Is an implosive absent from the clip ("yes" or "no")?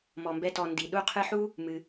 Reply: no